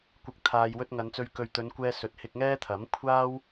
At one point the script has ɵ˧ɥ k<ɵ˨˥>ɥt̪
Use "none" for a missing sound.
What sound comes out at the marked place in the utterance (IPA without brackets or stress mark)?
ɵ˨